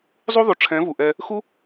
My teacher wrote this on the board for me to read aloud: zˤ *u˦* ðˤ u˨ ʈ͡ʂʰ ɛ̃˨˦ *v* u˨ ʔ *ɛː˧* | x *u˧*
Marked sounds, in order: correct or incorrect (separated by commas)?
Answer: correct, correct, correct, incorrect